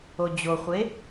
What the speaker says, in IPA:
od͡ʑoχʷe

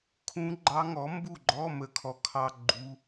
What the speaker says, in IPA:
kʰũ˧˥ɡ͡ǃɑ˧˥ŋɔ˩˥ mbu˥˨ɡ͡ǃɔ˧˥˧ mə˥˨kʰɔ˥kʰɑ˥ ɡ͡ǃu˧˥˧

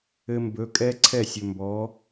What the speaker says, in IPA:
ɘ˧mbɵ˨˦kʼɛ˦ ǀʰɛ˦˨sʲɵ˨mbɔ˨˦

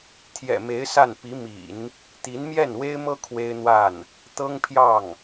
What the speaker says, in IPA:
t̪ʰjɛ̰˨˩me˧˥ɪ̯ sa˥˩n pi˧˥mḭ˨˩˦n | t̪i˧˥nmjɛ˥˩nwe˥ɪ̯mɤ˥ kʰwe˥ɪ̯n̪wa˥˩n | t̪ɤ˥ŋpʰjɑ˥˩ŋ

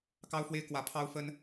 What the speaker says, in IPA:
kɑ˥ʊ̯fwe˥ɪ̯kwä˧˥ pʰɑ˥ʊ̯fə˥n

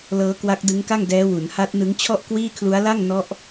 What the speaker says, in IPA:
lɤː˦˥kwa˦˥k̚ dɯ˦˥ŋka˥˩ŋdɛː˦˥ wu˩˦nha˦˥t̚nɯ˦˥ŋt͡ɕʰɔ˥˩ʔ kwiː˥˩kʰlu˦˥a̯ la˥˩ŋ nɔ˦˥ʔ

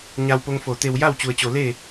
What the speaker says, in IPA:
ɲa˧wpo˧ŋfo˧˩t̪e˧w ja˥˨wt͡ɕu˩ə̯t͡ɕo˧˩ le˥˨

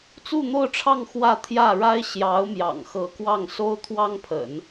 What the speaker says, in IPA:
t͡su˥˧n̪o˥˧ʊ̯ʈ͡ʂʰɑ˥˧ŋ xwä˥˧ t̪ʰjä˥˩ɻa˥ɪ̯ɕjɑ˧˥ʊ̯ mjɑ̰˨˩ŋxɤ˧˥ kwɑ˥˩ŋso˥ʊ̯ t̪ʰwɑ˥ŋpʰə̰˨˩˦n

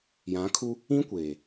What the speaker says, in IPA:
jã˨˦kʰu˦ | ĩ˦kʷeː˨

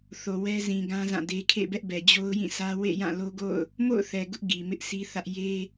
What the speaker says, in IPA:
θo˨wɛ˦zĩ˨ɡã˦ zã˦˨de˦ kʰḛ˦˨bɛ˦ʔbɛ˨ d͡ʑo˦ʊ̯jĩ˦˨sä˦ wḛ˦˨jã˦˨ lo˦ɡo̰˦˨ʊ̯ | mo̰˦˨ʊ̯θɛ˨ ɡʊ˦ʔ ɡi˨ mɪ˦ʔsʰi˦θä˦ʔ je˦

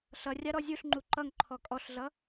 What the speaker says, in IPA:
ɬʌ rʲaɾɔzʲuɬŋ͡ǃu ǃʌŋ ǃʰɔkʼɔɬɮʌ

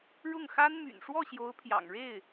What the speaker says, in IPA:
ɻʊ˥˩ŋxa˥nmy̰˨˩n ʂwɔ˥˩ɕjo˧˥ʊ̯pʰjɑ̰˨˩ŋ ɻe˥˩ɪ̯

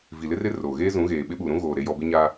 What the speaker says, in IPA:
vi˨lɪ˦rɪ˦ roː˨ɣeː˦ zũ˨˦ɣeː˨ɓɪ˦ ɓuː˨ɾũ˦ ɣoː˨ ɾe˦jɔ˦ bɪ˦ɲa˦

